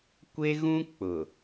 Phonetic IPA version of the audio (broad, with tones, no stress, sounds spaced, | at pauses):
kʷ e˦ ɣ ũ˦ k͡p ʊ˨